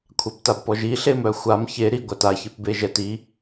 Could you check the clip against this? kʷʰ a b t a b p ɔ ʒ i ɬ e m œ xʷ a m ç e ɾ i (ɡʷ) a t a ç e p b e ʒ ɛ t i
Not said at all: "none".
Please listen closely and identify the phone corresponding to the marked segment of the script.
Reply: ɡʷ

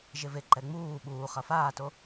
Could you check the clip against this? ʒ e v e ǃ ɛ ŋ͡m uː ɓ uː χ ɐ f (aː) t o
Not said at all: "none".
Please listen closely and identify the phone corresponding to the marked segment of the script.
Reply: aː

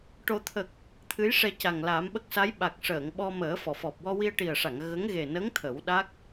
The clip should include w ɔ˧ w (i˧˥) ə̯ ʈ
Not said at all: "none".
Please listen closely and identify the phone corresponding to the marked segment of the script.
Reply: i˧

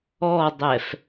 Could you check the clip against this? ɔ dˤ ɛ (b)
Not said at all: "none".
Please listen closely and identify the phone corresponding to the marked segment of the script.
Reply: f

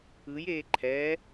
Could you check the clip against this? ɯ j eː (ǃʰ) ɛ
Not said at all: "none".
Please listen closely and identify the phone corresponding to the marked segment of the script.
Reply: ǃʰ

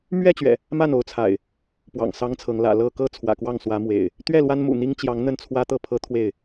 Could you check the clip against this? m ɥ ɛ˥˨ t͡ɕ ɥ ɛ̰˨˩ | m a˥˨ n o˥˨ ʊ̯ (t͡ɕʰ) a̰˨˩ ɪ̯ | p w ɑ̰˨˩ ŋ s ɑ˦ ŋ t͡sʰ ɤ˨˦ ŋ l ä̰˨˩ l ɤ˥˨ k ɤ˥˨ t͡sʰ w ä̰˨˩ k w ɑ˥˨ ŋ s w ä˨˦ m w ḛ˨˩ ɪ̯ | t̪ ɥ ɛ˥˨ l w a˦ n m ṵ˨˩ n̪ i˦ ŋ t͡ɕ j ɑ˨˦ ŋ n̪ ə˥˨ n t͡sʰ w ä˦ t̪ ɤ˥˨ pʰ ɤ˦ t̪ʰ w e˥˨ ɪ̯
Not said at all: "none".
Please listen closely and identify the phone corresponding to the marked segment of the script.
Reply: t͡sʰ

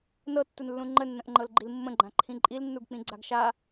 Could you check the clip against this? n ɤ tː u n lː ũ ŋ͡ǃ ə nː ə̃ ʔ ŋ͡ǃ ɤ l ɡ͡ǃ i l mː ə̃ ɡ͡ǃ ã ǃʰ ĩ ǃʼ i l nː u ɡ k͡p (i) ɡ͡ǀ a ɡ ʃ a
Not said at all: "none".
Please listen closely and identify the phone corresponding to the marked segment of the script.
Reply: ĩ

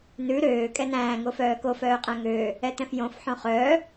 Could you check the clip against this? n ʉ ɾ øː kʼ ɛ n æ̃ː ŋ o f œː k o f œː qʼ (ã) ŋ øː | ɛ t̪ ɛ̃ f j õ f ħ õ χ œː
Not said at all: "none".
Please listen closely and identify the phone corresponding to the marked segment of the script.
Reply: æ̃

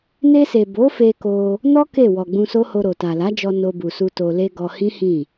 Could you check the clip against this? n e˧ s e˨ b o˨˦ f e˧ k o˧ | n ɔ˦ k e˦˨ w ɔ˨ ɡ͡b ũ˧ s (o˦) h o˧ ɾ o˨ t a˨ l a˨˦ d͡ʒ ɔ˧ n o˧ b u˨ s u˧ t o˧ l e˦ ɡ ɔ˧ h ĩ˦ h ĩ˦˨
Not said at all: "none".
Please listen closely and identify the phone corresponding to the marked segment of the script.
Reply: o˦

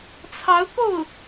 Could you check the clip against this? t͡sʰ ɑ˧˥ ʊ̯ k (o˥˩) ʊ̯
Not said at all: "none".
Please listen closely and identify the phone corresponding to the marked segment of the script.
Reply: o˥˩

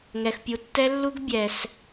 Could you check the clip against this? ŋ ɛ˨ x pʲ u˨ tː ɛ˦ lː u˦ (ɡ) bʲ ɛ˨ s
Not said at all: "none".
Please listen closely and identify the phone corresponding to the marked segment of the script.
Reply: ɡ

